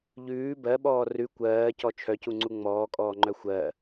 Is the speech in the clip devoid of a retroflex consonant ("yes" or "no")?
yes